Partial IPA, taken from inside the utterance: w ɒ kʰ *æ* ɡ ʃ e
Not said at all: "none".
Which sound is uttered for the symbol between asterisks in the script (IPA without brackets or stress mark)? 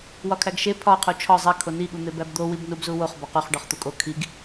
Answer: æ